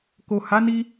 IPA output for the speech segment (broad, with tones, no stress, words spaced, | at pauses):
ko˨ha˨˦ni˧